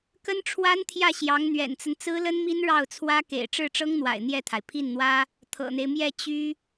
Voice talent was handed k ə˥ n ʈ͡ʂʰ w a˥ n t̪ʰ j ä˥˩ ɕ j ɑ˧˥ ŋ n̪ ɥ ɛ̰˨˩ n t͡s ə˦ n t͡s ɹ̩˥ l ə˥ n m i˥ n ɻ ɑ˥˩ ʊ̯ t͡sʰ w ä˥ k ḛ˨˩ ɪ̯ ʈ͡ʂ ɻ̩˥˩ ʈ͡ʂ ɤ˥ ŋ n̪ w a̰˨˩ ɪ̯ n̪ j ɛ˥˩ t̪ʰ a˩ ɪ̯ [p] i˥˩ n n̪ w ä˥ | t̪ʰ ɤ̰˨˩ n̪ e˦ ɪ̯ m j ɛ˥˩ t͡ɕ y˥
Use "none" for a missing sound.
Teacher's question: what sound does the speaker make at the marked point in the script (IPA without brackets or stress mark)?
pʰ